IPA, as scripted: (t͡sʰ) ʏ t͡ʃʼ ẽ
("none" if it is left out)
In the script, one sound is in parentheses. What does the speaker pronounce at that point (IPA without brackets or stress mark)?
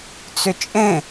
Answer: t͡s